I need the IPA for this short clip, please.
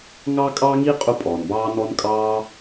ŋ ɑ˥ kʼ ɑ˥ ŋ i˥ qʼ u˥ pʼ ɔː˩ n b ɑː˥ n ɔ˥ n kʼ ɑː˥

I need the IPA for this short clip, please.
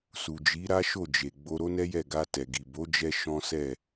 s u˨ d͡ʒ i˨˦ ɾ a˦ ʃ o˦˨ d͡ʒ e˨ ɡ͡b o˧ ɾ o˦ n ɛ˦ j ɛ˦˨ ɡ a˧ t ɛ˨ ɡ i˨ b o˨˦ d͡ʒ ɛ˧ ʃ ɔ̃˦ s ɛ˦˨

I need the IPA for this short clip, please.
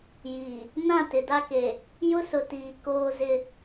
j iː˨ | n ã˦˨ t ɪ˨ d a˦ k e˨ | j ʊ˦ s ʊ˨ t iː˨ k oː˦ z ɪ˦

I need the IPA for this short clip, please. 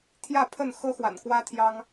t̪ʰ j ä˥˨ pʰ ə˥˨ n x ɤ˦ x w a̰˨˩ n k w ä˦ t̪ʰ j ɑ˦ ŋ

